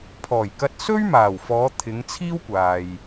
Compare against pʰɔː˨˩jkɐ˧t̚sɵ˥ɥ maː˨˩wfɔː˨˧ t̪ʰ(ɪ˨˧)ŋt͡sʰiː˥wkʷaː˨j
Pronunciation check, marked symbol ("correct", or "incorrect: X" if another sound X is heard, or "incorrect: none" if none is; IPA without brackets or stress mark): correct